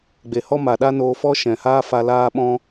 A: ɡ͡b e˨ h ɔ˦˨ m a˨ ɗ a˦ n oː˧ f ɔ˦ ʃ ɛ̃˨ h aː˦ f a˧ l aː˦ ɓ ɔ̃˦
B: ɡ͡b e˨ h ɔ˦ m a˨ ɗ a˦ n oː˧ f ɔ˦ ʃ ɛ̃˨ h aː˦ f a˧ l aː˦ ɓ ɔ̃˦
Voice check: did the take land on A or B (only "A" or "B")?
B